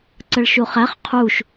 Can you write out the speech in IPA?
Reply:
ǀəɭʃuχæχ qʰuʃ

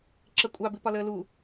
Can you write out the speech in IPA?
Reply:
ǁəkʷʼɑbɪpɒ ləːlu

